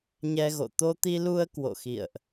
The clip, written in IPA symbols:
ɲ ɛ˧ ɣ o̰˧˨ t̪ o˧ t̪ i˧ l u˧ ə̯ k w o̰˧˨ x ḭ˧˨ ə̯ ʔ

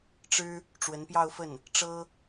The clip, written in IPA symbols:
ʈ͡ʂ ɻ̩˥ | ʈ͡ʂ w ə˧˥ n p j ɑ˥˧ ʊ̯ f ə˥˩ n | ʈ͡ʂ ɤ˥

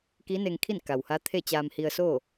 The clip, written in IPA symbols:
k i˧˥ n e˧ ŋ kʰ i˥˨ n k a˩ w h a˧˥ t̪ʰ e˥˨ t͡ɕ aː˧ m h i˧ ə̯ s oː˥˨

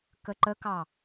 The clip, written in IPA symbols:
k ə ǃ ə k ɑ

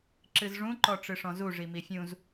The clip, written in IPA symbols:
ǁ ɨ z ʐ ũ ǃ ɔ ʈ͡ʂ ɨ ʂ ɔ̃ z u ʐ i m i fʲ ũ z

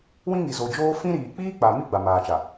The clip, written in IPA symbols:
w ĩ˦ ŋ i˨ z o˨ d͡ʒ oː˦ f ĩ˦ ɾ iː˨ k͡p iː˦ k͡p a˨ m i˦ ɡ͡b a˨ m aː˨ t͡ʃ a˨

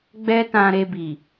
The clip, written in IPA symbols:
ɡ͡b ɛ˦ t ã˧ ɾ e˧ b i˨

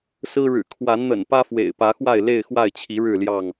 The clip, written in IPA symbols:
s ɹ̩˦ ɻ ɻ̩˨˩ kʰ w a˨˦ n n̪ ə̰˨˩ n p ä˦ f w ḛ˨˩ ɪ̯ p ä˨˦ x w a˥˨ ɪ̯ l e˥˨ ɪ̯ x w a˥˨ ɪ̯ t͡ɕʰ i˨˦ ɻ ɻ̩˥˨ l j ɑ˥˨ ŋ

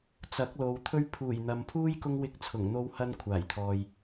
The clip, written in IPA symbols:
t͡s ɐ˨˥ k̚ l o˨ w t̪ʰ ɵ˧ ɥ pʰ uː˨˩ j n̪ ɐ˨ m pʰ uː˥ j k ʊ˥ ŋ w ɪ˧ k̚ t͡sʰ ʊ˨˩ ŋ n̪ o˧ w h ɐ˧ n kʷʰ aː˨˩ j t̪ʰ ɔː˨ j

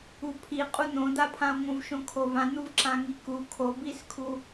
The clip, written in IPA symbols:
u pʰ i qʼ u n̪ õ d̪ a pʰ ã o̯ ŋ õ v ʃ õ kʰ o v ã n̪ u v ǁ ã ŋ i k u kʰ o b i s kʰ u

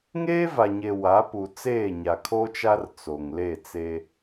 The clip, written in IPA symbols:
ŋ eː˦ v a˨ ɲ e˨ w a˨˦ p u˨ t͡s eː˦˨ ɲ a˨ kʰ o˦ t͡ʃ a˦ r t͡s o˨ ŋ l e˦˨ t͡s e˦

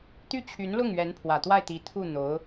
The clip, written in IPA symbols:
t̪ y˥˩ t͡ɕʰ y˧˥ n l ʊ˥˩ ŋ ɥ ɛ˧˥ n pʰ w ä˨˩ t̪ w a˥˩ ɪ̯ t̪ i˧˥ t̪ʰ u˥˩ n̪ o˧˥ ʊ̯

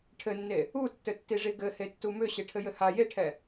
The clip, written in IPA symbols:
ʈʰ ɘ nː e | u tː ɘ tː i ʐ i ɡ ɘ h e tː u m ʏ ɕ e ʈʰ ɘ j ɘ h a j e ʈʰ ɛ

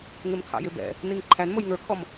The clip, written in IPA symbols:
ŋ ɪ m kʰ ɑ̰ j ɪ b ɛ̰ | n i ŋ ǃʰ æ n m ʊ j ŋ ə˞ kʰ ɔ m

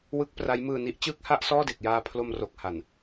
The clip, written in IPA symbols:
w ɯ˦˥ k̚ p r a˦˥ j m ɯː˧ n i˦˥ ʔ t͡ɕ ɯː˥˩ k̚ h a˥˩ ʔ s ɔː˥˩ d e˨˩ k̚ j aː˧ pʰ l o˧ m r o˨˩ k̚ h a˨˩ n

